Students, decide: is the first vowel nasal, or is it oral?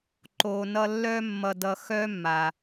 oral